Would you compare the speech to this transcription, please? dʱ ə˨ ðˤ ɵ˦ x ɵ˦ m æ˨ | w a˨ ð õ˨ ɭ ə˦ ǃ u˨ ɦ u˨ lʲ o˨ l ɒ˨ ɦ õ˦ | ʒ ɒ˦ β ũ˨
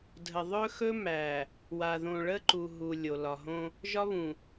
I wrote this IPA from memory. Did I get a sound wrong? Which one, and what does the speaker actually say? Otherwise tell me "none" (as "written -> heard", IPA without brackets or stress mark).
none